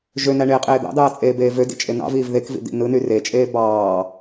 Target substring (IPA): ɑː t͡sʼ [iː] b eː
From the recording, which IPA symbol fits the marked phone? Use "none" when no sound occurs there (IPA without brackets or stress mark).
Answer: eː